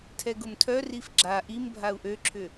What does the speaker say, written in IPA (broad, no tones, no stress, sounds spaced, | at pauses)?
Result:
tʰ ɛ ɡ ʊ m tʰ œ r i f ɡ͡ǁ a ʔ i m bʱ a u̯ ʔ ø ǁʰ ʏ